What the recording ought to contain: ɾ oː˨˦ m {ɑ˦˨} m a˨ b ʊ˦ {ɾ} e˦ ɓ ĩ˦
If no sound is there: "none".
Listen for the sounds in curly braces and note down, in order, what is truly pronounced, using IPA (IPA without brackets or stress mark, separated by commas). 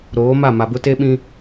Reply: a˦˨, t